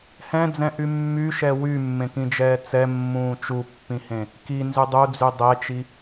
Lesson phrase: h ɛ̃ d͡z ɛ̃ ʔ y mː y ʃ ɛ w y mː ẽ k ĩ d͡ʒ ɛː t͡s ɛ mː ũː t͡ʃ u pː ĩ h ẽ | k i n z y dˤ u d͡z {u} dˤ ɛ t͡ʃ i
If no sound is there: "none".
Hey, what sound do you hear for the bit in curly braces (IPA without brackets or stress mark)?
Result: y